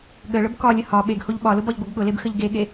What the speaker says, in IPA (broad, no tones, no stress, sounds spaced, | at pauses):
ɠ ə ɭ ə b k ɒ lʲ ə h ɒ ɓ e ɡ h o ʎ ɓ ɒ l ʊ b ɒ ʎ ɡʷ ʌ ɡ ɠ ʊ l e b x ə ʎ ɡ e ɠ e